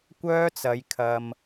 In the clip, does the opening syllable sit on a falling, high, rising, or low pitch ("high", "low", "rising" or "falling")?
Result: high